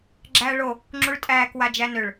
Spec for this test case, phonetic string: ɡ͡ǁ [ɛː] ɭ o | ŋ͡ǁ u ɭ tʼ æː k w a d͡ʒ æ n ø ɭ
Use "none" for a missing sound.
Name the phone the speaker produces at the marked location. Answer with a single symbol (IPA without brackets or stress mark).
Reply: æː